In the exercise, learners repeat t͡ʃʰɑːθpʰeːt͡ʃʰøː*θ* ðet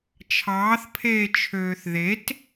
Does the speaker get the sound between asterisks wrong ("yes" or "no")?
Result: no